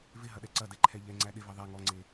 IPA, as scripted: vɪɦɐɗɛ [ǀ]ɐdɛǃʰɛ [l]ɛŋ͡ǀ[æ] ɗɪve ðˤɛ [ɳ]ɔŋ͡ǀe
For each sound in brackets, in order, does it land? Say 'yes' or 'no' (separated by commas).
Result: yes, no, yes, no